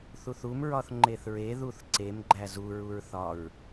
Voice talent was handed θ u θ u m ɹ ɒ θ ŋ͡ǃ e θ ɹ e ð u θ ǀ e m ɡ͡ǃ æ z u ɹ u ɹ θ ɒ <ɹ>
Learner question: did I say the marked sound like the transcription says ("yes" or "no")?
yes